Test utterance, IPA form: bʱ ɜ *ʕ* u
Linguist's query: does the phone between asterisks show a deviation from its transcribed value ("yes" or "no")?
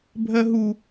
yes